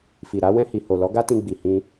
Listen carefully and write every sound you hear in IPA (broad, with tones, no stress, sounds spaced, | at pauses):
f i˨ ɾ a˨˦ w ɛ̃˧ h i˨ h o˨ l ɔ˨˦ ɡ a˦ t ĩ˧ ɡ͡b i˨ h ĩ˧